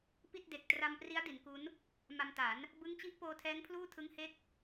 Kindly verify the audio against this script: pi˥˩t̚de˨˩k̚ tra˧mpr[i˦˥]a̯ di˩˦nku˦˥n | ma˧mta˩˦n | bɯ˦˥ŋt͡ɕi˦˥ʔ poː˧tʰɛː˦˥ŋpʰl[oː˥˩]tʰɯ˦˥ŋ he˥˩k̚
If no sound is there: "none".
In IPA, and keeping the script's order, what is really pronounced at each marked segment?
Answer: i˦˥, uː˥˩

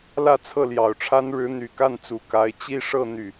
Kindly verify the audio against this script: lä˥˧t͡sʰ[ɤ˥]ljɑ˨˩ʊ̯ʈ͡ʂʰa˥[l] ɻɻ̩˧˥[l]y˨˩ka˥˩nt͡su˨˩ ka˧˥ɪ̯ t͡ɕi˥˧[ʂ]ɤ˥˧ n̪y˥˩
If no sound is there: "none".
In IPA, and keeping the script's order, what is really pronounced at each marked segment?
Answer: ɤ˥˩, n, n̪, ʂ

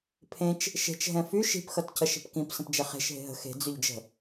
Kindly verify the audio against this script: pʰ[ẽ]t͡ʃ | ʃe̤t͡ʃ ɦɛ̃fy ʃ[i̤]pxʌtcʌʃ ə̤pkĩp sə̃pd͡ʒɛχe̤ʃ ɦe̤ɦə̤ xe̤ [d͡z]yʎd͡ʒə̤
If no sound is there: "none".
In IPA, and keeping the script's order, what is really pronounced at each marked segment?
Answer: ẽ, i̤, d͡z

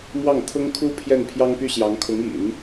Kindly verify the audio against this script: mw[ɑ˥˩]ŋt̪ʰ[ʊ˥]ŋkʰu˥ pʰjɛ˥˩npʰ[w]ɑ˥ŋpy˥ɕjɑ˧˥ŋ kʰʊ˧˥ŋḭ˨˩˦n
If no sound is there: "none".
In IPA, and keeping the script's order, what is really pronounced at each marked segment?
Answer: ɑ˥˩, ʊ˥, j

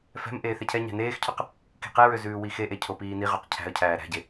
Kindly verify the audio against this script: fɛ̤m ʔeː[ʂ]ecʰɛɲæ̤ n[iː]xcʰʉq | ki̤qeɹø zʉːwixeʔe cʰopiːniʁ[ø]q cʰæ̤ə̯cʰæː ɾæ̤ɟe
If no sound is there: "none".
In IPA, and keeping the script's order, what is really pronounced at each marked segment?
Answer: θ, eː, ø

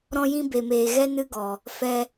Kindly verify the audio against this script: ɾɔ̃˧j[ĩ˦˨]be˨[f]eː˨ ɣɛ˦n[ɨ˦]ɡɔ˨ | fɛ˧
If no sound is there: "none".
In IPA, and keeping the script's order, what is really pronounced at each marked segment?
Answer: ĩ˧, m, ɨ˦

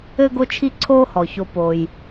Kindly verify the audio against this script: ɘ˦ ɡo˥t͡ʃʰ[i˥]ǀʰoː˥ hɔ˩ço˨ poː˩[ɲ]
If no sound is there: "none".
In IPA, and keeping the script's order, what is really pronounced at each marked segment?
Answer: i˥, j

